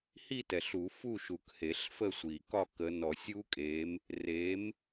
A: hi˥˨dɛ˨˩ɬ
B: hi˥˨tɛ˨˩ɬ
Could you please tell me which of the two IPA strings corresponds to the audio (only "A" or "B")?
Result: B